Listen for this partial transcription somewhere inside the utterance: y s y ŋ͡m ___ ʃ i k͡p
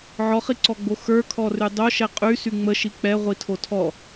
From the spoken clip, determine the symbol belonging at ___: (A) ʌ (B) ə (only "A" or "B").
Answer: B